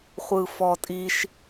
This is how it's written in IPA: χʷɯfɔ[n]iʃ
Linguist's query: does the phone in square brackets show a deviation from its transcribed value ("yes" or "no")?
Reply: yes